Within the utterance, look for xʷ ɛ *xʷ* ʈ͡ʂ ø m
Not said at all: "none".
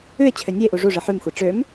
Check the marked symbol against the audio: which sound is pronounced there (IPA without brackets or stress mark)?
none